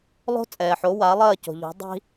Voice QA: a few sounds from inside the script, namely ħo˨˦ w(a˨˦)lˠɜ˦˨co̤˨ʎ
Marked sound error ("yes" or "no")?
no